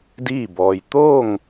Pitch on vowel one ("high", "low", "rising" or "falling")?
falling